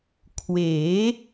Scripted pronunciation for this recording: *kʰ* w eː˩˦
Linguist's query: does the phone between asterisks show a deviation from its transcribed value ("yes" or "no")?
no